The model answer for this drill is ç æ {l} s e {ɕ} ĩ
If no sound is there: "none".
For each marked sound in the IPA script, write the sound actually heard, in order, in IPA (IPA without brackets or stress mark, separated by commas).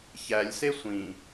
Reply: lʲ, sʷ